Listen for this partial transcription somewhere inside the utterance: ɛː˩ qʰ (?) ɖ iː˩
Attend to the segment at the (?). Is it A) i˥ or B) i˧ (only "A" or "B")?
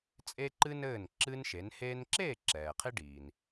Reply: B